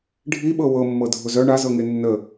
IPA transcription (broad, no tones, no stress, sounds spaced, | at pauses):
ɖʱ i ɓ ɤ w ɤ mː ɤ dʱ ʊ z œ ɳ a z ɤ ŋ e nː ə